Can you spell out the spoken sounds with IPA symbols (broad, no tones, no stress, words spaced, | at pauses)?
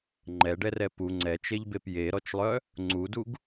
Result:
ŋ͡ǃɛɖɛrɛ pu ŋ͡ǀɛt͡ʃeʎbep jeɾɔt͡ʃlˠœ | ŋ͡ǀuduɡ